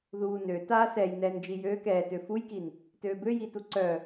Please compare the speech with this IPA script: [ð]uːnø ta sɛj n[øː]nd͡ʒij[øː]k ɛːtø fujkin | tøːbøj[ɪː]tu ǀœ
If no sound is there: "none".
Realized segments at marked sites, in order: ð, ɛː, øː, iː

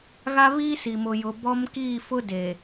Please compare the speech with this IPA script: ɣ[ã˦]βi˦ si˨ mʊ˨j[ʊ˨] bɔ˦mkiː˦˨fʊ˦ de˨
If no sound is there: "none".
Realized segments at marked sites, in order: a˦, ʊ˨

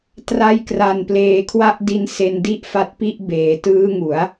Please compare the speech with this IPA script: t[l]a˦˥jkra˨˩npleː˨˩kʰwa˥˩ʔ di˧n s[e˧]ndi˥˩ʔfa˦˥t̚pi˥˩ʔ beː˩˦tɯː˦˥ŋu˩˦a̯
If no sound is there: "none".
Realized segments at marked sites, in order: r, e˧

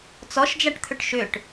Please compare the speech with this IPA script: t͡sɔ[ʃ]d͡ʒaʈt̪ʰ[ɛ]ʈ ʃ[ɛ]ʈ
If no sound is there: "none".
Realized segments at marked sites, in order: ʃ, ʏ, ʏ

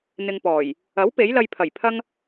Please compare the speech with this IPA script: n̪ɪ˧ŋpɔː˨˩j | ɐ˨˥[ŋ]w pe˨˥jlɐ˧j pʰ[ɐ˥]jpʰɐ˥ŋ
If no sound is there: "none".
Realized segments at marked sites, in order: none, ɐ˨˩

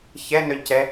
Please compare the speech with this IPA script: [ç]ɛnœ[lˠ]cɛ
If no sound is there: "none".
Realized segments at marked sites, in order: ç, ʎ

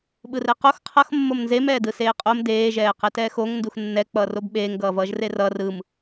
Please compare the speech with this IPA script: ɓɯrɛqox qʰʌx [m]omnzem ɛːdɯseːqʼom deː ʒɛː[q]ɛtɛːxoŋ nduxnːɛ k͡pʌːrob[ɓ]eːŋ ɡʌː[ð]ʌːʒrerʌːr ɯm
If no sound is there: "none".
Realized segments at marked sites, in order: mː, q, ɓ, v

